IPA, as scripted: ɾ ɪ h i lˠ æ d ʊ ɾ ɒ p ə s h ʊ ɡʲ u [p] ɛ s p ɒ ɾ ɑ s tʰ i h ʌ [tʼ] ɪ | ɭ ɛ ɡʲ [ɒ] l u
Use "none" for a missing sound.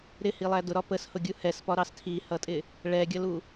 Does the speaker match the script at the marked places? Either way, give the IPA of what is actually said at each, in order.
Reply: h, tʼ, ʌ

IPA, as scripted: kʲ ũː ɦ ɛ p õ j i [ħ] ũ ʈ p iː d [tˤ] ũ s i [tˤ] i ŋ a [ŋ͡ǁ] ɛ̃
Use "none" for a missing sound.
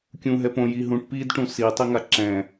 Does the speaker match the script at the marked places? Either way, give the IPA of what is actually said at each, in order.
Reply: ɦ, ʈ, tˤ, ǁ

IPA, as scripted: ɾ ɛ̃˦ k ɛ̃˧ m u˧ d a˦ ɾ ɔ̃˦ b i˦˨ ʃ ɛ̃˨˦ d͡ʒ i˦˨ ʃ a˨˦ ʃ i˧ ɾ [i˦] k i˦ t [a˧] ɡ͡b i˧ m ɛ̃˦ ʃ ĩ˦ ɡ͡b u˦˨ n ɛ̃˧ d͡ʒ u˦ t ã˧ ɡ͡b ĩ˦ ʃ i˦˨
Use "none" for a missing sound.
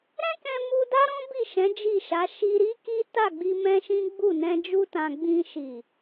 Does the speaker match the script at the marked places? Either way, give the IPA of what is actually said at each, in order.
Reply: i˦, a˦˨

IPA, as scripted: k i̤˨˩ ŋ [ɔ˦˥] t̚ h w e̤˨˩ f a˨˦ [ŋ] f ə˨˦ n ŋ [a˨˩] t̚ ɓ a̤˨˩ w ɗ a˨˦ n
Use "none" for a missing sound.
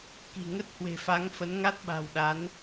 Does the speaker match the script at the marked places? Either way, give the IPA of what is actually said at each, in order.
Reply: ə˦˥, ŋ, a˦˥

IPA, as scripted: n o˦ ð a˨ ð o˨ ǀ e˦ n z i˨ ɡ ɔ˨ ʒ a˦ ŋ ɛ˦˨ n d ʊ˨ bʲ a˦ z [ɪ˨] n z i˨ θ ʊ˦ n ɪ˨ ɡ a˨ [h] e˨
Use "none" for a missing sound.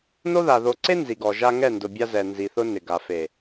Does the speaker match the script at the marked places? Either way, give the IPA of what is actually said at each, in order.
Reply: ɛ˨, f

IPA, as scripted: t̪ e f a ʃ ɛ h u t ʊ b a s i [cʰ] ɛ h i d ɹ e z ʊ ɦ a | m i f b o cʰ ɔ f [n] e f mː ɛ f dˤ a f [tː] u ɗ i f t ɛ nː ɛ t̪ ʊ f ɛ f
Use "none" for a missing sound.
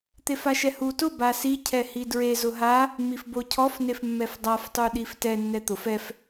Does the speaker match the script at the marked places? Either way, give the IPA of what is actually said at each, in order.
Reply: cʰ, n, tˤ

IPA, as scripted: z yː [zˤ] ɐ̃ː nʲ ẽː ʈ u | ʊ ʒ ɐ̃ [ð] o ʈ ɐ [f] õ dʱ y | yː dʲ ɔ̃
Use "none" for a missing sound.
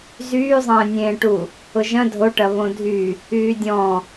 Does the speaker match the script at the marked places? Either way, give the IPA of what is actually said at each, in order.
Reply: zˤ, dʱ, β

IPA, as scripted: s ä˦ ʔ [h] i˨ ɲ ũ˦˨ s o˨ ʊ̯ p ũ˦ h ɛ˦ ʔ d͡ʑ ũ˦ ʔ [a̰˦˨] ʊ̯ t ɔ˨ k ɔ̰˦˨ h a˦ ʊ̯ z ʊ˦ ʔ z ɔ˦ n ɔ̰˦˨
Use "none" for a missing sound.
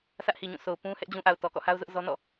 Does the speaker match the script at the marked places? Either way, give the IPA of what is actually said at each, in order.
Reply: h, a˨

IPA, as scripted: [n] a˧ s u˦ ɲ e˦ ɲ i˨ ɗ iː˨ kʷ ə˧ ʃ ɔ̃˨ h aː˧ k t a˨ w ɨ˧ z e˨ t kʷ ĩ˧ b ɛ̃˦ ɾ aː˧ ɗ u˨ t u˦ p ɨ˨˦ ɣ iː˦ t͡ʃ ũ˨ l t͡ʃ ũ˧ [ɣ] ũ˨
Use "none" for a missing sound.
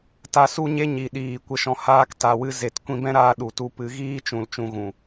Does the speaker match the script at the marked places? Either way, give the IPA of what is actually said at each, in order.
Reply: t, ɣ

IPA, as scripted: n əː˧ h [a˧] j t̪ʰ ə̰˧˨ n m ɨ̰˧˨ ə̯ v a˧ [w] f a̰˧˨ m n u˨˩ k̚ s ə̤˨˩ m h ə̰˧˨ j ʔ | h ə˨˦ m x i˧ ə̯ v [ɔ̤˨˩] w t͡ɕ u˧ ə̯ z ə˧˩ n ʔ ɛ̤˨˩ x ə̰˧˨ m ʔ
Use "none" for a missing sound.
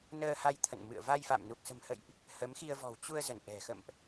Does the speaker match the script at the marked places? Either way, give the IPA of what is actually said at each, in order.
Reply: a˧, j, ɔ̤˨˩

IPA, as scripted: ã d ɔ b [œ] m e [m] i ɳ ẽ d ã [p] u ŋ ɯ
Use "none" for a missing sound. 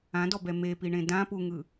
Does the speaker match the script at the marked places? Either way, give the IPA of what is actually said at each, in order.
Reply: ɛ, p, p

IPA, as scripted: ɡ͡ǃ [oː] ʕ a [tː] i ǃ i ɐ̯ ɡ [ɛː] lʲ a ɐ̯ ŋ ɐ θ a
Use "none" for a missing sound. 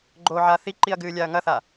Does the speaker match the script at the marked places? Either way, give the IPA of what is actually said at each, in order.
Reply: oː, θ, ɨː

